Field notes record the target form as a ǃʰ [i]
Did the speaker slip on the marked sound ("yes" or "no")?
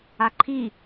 no